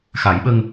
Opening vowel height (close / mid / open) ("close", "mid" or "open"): open